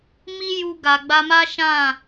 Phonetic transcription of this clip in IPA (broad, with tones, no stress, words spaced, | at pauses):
mi˦ ju˧ɡa˨ɡ͡ba˧ma˦ ʃã˦˨